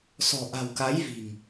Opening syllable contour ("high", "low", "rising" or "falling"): low